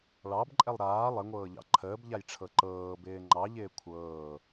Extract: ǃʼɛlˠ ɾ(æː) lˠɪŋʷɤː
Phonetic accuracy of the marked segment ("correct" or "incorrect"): incorrect